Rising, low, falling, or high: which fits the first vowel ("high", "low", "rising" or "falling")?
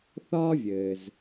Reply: high